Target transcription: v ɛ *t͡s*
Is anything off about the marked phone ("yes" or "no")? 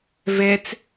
no